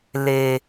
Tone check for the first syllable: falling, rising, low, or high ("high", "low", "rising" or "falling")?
low